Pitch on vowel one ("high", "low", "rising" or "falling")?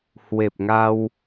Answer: low